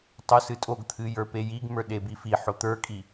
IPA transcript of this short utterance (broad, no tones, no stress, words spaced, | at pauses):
tˤosɨtʼoɡt̪ʰɨ jə˞pejiɡmə˞ ɗebifiħo t̪ə˞kʼi